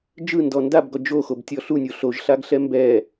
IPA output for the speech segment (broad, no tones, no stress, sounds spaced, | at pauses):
d͡ʒ ɯ n d ɔ n d a b ɡ ɔ d͡ʒ o x o b tʲ ɔ ɬ u nʲ o ɬ o ʒ ɬ a ɡ ɬ ɛ m b ɛ